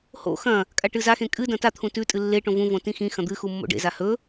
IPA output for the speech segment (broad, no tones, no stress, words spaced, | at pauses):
ho̰ xɐ̃ | kʼaʈɨzaxẽ kʼɨ dɐ̃tat̪ʰũ tʉ tʼɨlːeʈõ vũvõ tĩxĩxɐ̃ d̪ɨ xumːo̰ɖḛza hɵ